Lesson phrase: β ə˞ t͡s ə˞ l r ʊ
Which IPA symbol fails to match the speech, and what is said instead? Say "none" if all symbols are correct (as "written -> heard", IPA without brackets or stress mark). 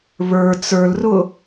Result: none